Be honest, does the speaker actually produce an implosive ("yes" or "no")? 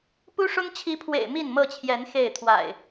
no